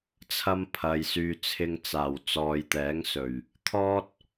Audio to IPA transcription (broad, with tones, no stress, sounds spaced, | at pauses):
t͡sʰ ɐ˧ m pʰ ɐ˨ j s yː˨ t͡sʰ ɪ˧ ŋ t͡s aː˨˩ w t͡s ɔː˨ j t̪ ɛː˨˥ ŋ s ɵ˨˩ ɥ | t̪ʰ ɔː˥ t̚